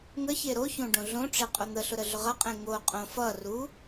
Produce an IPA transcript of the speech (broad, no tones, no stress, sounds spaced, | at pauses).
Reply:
ŋ ə ç e ɾ o ç õ ɖ õ ɮ õ ʈ͡ʂ e qʼ o n̪ ə ɬ ʊ ɾ ə ɮ ʊ ʁ ʌ qʼ ẽ ŋ o qʼ õ f ʌ r u